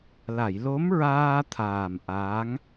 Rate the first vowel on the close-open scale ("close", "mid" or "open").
open